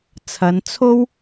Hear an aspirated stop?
yes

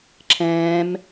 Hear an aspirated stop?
yes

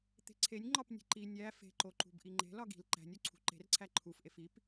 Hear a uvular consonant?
no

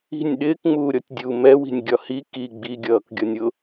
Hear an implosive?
yes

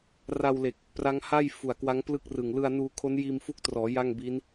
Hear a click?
no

